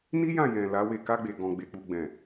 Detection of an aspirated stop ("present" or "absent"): absent